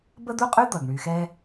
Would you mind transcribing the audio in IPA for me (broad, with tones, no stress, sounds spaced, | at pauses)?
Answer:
b ə˥ d̪ u˥ qʼ y˥ d̪ ʌ˩ ɡ ɳ y˨ x ɛ˦